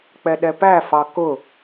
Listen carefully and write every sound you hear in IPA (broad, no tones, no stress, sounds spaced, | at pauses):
k͡p ɛ ɗ ɛ p æ f ɑ k ʊ